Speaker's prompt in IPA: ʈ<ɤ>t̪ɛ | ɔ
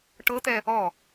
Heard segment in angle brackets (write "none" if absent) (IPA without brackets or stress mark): ɤ